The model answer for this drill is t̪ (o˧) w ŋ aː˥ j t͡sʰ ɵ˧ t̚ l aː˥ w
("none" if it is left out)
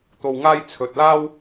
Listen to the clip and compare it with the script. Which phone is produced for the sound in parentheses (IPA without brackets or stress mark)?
o˧